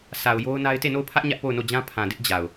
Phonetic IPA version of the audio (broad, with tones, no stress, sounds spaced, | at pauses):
sʰ a˨ ʊ̯ j o˦ ʊ̯ n a˦ ɪ̯ t e˦˨ n o˦˨ ʊ̯ pʰ ä˦ ʔ ɲ ä˦ ʔ p o˦˨ ʊ̯ n o˦˨ d͡ʑ ã˦ pʰ ã˨ d ɪ˦ ʔ d͡ʑ a˨ ʊ̯